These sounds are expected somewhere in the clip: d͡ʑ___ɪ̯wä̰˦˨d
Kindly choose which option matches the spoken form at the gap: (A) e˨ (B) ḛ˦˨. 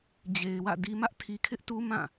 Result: A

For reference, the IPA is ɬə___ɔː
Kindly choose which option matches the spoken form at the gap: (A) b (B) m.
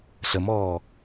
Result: B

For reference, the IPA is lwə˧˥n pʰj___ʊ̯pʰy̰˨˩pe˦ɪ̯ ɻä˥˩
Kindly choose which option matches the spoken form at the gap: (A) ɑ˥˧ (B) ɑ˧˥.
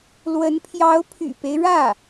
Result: B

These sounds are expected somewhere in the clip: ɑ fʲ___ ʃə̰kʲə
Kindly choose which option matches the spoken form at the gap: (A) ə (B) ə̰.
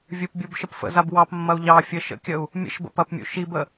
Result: A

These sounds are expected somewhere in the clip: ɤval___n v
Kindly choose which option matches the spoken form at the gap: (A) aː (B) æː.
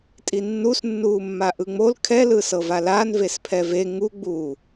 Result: A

